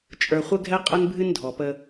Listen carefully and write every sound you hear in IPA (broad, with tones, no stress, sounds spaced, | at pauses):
t͡ʃʼ ə˞˨ χʷ ə˦ ɡʱ ɛ˦ qʼ ə˦ n bʱ ɨ˦ n dʱ ɔ˨ p ə˦